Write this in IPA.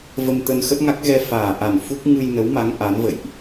v ə˧ m t̪ ə˧ n x ə˦˥ t̚ ŋ a˦˥ k̚ ɣ ɛ˧ f aː˨˩ ʔ a˨˩ n f u˦˥ k̚ ŋ ɨ˧ j n ə˨˦ w m a˨˦ ŋ ʔ a˨˦ n v ə̰˧˨ j ʔ

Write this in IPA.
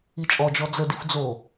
i t͡ʃʼ ɔ d͡ʒ ɔ d͡z ə d i f d͡z o

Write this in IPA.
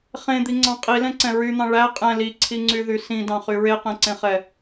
χ ẽ d̪ i ŋ͡ǀ ɑ̃ qʼ i l ɛ̃ ǀ ɛ̃ ɹ y n̪ ɑ̃ ɭ æ qʼ ɛ̃ l i ǀʰ i ŋ͡ǀ y ð y s ĩ d ɑ̃ χ y ɹ e q ɛ̃ ǀ ẽ χ ɛ

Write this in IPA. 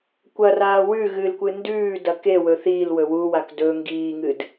kʷ ɐ r aː w ʉ ɣ ɨ l kʷ ɨ n d ʉː d ɐ k e w ɵ θ iː l w ɵ w u w a k d ɵ ŋ ɡ iː ŋ ɨ d

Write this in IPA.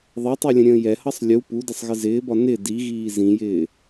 ðˤ ɛ tˤ ɛ lʲ ə̃ ɾʲ ə̃ː j ɛ h ʌ sˤ lʲ u p u d ɪ sˤ ɣ ɪ z ɪː b ɒ n ɪ d i ɣ iː z ĩ j ɪː

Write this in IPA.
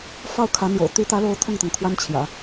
f ɑ˥˩ ʊ̯ kʰ ä˧˥ n̪ j o̰˨˩ ʊ̯ t̪ y˧˥ t̪ ä˧˥ l o˧˥ ʊ̯ t̪ʰ ʊ˥˩ ŋ t̪ ɤ˩ ŋ kʰ w a˥ n t͡ɕʰ j ä̰˨˩˦

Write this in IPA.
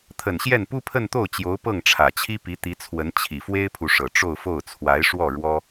t̪ʰ ə˨˩ n ɕ j ɛ˥˩ n p u˥ pʰ ə˥˧ n t̪ o˥˩ ʊ̯ t͡ɕ j o˧˥ ʊ̯ p ɤ˥˩ ŋ ʈ͡ʂʰ ä˨˩ t͡ɕʰ i˥ p i˧˥ t̪ i˧˥ t͡sʰ w ə˧˥ n t͡ɕʰ i˨˩ f w e˥ ɪ̯ pʰ u˨ ʂ ɤ˨˩ ʈ͡ʂ o˥˧ ʊ̯ f o˥˩ ʊ̯ t͡sʰ w a˧˥ ɪ̯ ʂ w ɔ˥˩ ɻ w ɔ˥

